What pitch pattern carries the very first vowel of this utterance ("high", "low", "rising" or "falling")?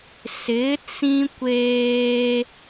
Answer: rising